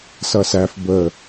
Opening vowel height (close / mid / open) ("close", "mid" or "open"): mid